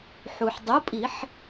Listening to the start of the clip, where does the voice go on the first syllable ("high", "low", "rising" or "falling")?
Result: low